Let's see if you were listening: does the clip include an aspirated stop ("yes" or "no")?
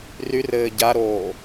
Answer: no